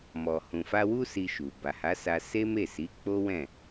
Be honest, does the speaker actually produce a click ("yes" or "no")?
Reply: no